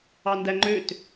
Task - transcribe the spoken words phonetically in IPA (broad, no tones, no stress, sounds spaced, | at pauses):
ɑ n d æ ŋ͡ǃ ø t